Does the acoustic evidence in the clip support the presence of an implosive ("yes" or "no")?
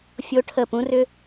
no